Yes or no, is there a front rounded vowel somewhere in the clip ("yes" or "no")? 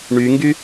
yes